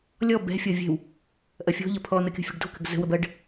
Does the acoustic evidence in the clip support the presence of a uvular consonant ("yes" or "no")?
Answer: no